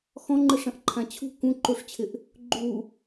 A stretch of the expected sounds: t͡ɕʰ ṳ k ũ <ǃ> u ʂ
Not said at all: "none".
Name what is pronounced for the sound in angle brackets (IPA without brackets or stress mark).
ǃ